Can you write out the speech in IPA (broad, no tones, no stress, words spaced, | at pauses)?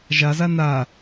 ʒaza na